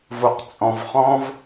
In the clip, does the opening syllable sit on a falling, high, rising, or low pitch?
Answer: low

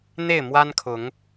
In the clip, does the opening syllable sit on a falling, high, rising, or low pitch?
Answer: falling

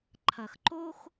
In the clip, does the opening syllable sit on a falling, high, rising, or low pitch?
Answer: low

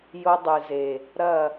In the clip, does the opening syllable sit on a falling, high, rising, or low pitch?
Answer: high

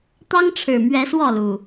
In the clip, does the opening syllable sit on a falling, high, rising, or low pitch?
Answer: high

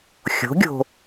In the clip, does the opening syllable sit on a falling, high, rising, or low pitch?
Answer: rising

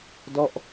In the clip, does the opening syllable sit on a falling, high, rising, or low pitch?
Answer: falling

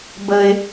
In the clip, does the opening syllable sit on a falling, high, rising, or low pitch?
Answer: low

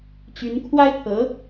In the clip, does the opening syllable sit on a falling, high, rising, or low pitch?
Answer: rising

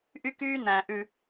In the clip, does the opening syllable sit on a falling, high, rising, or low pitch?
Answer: high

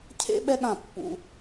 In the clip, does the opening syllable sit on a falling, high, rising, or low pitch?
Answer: high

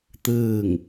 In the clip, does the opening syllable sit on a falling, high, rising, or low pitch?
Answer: falling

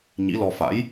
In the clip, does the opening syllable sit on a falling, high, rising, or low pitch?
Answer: rising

